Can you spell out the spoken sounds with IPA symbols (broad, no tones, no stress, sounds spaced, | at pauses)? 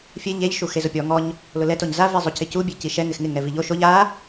fʲ e ʎ e ʎ ʃ u x e z ʊ pʲ ɔ ŋ ɔ ɲ | l ʊ l ɛ t o ɲ z a v i zˤ u c ɪ c u bʲ e c i ʃ ɛ ŋ ɪ x ŋ ɪ ŋ ɛ v i ʎ o ʃ o ʎ a